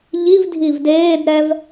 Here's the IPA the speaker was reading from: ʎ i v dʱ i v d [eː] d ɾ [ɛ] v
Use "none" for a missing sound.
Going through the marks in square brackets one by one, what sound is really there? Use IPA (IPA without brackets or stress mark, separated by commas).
eː, ɛ